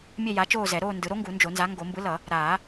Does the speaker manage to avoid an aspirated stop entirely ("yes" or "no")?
yes